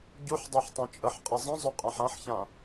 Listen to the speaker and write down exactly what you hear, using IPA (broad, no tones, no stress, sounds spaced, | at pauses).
ɟ u ħ dˤ ɛ ħ tˤ ã t͡ʃʼ ə ħ qʼ i zˤ ə̃ zˤ ø qʼ ã ħ ã ħ ç ã